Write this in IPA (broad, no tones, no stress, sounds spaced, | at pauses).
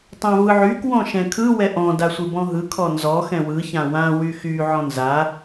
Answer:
tˤ ã v ɯ ʕ y k w ɔ̃ ʃ ɛ̃ kʰ ɯ w ɛ ʔ ɔ̃ d a sʷ ɯ b ɔ̃ ɦ ɯ kʰ ɔ n z ɔ x ɛ̃ w ɯ ç ã w ã w y x y ʕ ɔ̃ n z a